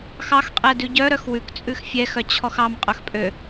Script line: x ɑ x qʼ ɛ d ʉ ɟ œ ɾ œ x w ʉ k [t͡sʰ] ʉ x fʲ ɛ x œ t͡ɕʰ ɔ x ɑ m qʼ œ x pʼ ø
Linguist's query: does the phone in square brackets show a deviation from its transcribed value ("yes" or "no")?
yes